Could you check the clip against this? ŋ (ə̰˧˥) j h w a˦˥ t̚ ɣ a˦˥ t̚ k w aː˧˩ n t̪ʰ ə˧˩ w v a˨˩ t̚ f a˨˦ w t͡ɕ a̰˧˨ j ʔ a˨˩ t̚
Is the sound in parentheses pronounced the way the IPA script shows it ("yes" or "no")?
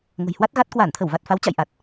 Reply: no